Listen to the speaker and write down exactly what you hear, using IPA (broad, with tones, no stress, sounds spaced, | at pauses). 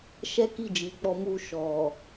ʃ ɛ˦ k i˦˨ d͡ʒ i˨ k͡p ɔ˧ m u˧ ʃ ɔ˨